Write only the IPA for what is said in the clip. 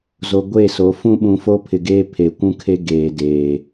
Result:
z o˨ ɡʷ e˦˨ s o˨˦ f ũ˦ ɓ ũ˨ f o˦ pʰ ɪ˨ ɡ eː˦ pʰ e˨ kʷ ũ˦ kʰ e˦ ɡ eː˨ d eː˨

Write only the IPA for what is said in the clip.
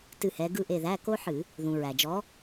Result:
t ɨ˦˨ h ɛ˨˦ ɡ ɯ˦˨ ʔ e˦˨ ð æ˧˥˧ k o˥ ħ ɨ˧˩˧ | ð ũ˩ ɹ æ˩ d͡ʒ ɔ˨˦

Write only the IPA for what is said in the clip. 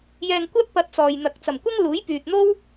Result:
j ɛː˧ ŋ kʷ ɐ˥ t̚ p ɐ˧ t̚ t͡s ɔː˨ j n̪ ɐ˨ k̚ t͡s ɐ˨˩ m kʷ ɐ˥ ŋ l uː˨˥ j p yː˨ t̚ n̪ o˥ w

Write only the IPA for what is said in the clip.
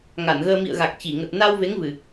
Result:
ŋ a˧˩ n ɣ əː˧ m ḭ˧˨ ə̯ ɣ a˨˩ k̚ t͡ɕ i˧˩ ŋ ə˨˩ t̚ n a˧ w v e˨˦ ŋ v ɨ˨˩

